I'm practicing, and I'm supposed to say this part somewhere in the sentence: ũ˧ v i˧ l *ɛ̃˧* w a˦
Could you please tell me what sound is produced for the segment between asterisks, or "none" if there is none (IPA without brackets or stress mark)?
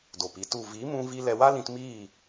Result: ɛ˧